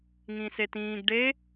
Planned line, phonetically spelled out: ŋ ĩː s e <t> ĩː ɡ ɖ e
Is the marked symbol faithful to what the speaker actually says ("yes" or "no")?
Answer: yes